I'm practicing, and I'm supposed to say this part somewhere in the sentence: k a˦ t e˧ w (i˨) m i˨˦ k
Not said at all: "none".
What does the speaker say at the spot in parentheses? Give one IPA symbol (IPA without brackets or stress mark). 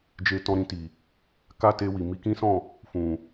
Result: i˨